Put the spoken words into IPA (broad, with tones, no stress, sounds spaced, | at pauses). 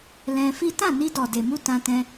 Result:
l ɛ̃˧ f i˦ t ã˦˨ n i˧ d ɔ˨ d e˨ m u˧ t ã˧ t ɛ̃˧